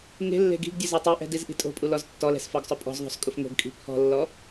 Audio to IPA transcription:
ŋ e̤ lː e̤ ɡ i̤ ɡ dʲ ʊ z e tˤ i ʔ ɛ̤ d i z ʔ i̤ tʼ o̤ pʼ u l ɔ z tː ɔ l ɛ̤ s f ɔ ɡ sˤ ʊ pʼ ɔ̤ z ðˤ o̤ s kʼ ʊ f ŋ o̤ ɡ kʼ i̤ pʰ ɔ̤ lː ɔ

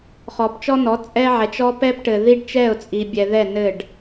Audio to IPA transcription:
χ ɔ˨ p t͡ʃ ɔ˦ n ɔ˨˦ t͡sʼ ɛ˦ ʕ ɛ˨ t͡ʃ ɔ˦ p ɛ˦ p ʈ ɘ˨ ð i˦ ɖ t͡ʃ ɛ˦˨ ʊ̯ t͡sʼ i˨ bʲ ɛ˨ ð ɛ˦˨ n ɘ˦˨ ɖ

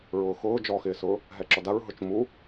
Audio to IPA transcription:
ɹ ʊː x ʊː d͡ʒ ɔ x ɪː s ʊː | ɦ ɛ ǁ ɔ d a ɹ ɦ ʊ t͡ʃ m u

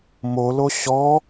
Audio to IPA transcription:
m o l o ɕ ɔ

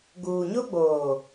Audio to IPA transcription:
ɡ uː˨ ɲ o˦ ɡ͡b oː˨

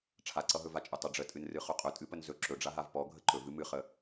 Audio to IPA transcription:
ʈ͡ʂʰ a ǀ ʌ ɦ ɵ v a t͡ʃʼ ɵ tˤ ə ɖ͡ʐ ə tʼ ɨ n r ɨ χ ɵ qʼ ɵ tʼ ɨ p ə n z ɵ ǁ ɵ ɖ͡ʐ a ɦ a v p ɔ ɡʱ ə ǃ ɵ v ɨ m ɨ χ ə

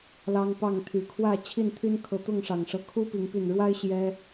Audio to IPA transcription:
l ɑ˦ ŋ p ɑ˥˨ ŋ t̪ʰ y˨˦ kʰ w ä˥˨ t͡ɕʰ i˥˨ n t̪ʰ y˦ n kʰ ɤ˨˦ t̪ ʊ˥˨ ŋ ʂ ɑ˨˩ ŋ ʂ ɤ˦ kʰ u˦ p i˨˦ ŋ p y˨˩ n ɻ w a˦ ɪ̯ ɕ j ɛ˦

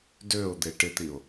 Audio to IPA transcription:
d ø ʊ̯ d̪ e ʈ ɪ t̪ i ʊ̯

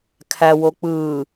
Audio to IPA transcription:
kʰ æ w o k͡p ɯ

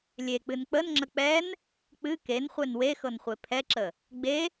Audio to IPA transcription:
lʲ e k͡p ɨ n k͡p ə n ŋ͡ǁ ə k͡p ɛ n | k͡p ɨ k e n χʷ e n w e x ɤ n χʷ e pʰ ɛ ǁ ə | ɡ͡b e

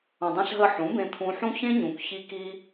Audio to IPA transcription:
õ˨ dˤ ɛ̃˧ ɬ ɦ ə˧ ħ ũ˨˦ b ẽ˧ t̪ʰ ũ˧ ħ ũ˦ ç ẽ˦ ɲ ũ˨ k ç i˧ k i˧

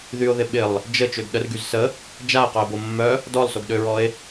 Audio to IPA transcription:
ð y o̯ ð ɪ ɓ ɪ lˠ | d͡ʒ ə t͡ʃ ø ɡ ɗ ə r ɡ y z s ə | d͡ʒ a e̯ q œ e̯ b o mː œ | d ɔ lˠ s o ɡ ɗ ø ɹ ɔ e̯

